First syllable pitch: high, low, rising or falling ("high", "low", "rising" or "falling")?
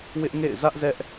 high